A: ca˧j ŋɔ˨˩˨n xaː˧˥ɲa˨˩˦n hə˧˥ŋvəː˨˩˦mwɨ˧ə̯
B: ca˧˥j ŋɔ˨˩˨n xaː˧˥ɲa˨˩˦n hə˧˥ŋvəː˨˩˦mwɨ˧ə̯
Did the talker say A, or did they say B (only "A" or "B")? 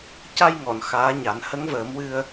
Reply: A